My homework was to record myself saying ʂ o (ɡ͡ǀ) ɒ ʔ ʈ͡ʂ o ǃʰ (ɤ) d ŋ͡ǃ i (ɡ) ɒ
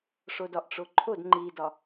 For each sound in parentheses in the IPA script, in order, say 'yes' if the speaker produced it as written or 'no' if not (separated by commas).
no, no, no